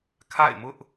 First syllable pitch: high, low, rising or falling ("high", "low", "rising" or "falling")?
falling